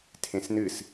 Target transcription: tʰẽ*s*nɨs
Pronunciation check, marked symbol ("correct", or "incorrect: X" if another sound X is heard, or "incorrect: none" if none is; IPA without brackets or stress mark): correct